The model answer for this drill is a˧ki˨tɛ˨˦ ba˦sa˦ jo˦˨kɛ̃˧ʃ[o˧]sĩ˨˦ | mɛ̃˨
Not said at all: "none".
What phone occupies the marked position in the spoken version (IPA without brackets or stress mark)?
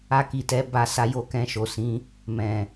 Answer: o˨